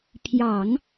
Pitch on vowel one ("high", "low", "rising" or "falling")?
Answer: low